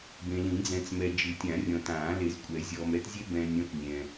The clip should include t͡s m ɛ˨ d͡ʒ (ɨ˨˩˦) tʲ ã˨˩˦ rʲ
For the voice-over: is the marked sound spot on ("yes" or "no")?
yes